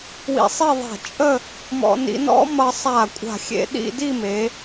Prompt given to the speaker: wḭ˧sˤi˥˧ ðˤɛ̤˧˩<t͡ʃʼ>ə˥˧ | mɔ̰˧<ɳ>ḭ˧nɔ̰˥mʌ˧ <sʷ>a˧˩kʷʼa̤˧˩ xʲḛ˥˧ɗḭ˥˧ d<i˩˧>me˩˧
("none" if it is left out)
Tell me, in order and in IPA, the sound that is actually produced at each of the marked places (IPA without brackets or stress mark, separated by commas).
t͡ʃʼ, n, sˤ, i˥˧